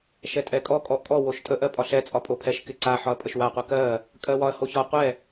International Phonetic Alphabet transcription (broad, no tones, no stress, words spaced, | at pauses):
ʃɛtʼɛkʼɔ kʼɔʔkʼɔ woʃtʼə ʔɜpʼɒɬɛ t͡sʼɒpʼopʰɛʃ kɪǀa ħɒɐ̯pʼəʃwa qʷɜkɜ | kʼɜwɒɐ̯ hoçɒ qʷɛ